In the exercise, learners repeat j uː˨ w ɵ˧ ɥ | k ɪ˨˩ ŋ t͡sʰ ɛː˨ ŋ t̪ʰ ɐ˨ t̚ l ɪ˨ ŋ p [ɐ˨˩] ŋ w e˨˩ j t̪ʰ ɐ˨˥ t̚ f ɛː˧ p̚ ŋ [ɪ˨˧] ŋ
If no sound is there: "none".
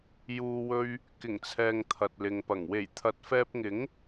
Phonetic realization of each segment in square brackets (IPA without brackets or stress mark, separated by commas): ɐ˨˩, ɪ˨˥